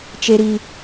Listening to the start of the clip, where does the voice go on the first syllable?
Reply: low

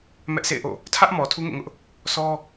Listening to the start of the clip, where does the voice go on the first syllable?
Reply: high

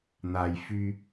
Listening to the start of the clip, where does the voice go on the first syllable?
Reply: low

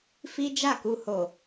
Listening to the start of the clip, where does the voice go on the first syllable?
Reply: high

